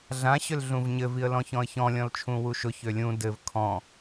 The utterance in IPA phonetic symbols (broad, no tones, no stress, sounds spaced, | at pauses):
ɮ ã ɕ ʏ l ɮ ũ v ɲ ɘ v i ə̯ l ɔ̃ ç ɔ̃ ə̯ ç ɔ̃ lʲ ɔ̃ l t͡ʃʰ ũ w u ʃ ʊ ç ø lʲ ũ d ɘ v kʰ ɔ̃